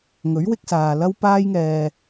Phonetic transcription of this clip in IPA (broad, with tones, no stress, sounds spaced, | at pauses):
ŋ ɵ˨˥ ɥ w ɪ˧ k̚ s aː˨ l ɐ˥ w p aː˥ j ŋ ɛː˧